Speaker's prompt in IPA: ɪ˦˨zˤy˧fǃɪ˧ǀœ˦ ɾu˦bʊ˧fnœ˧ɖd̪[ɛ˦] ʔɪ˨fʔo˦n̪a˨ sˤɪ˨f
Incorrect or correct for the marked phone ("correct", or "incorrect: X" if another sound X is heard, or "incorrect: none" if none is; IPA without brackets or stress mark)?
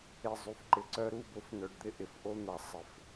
incorrect: ɪ˦